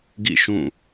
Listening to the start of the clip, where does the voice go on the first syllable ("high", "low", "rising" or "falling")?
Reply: falling